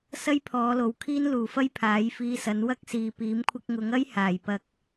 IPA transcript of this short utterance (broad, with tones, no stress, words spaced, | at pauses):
sɐ˥jpʰɔː˨˧lo˨w kʰiː˥nluː˨˩fɐ˥j pʰaː˨˥jfiː˧sɐ˨˥n wɐ˥k̚siː˨ piː˨˥mkʷʰɪ˧k̚ŋʊ˨˥ŋɐ˥j haː˨˩j pɐ˨k̚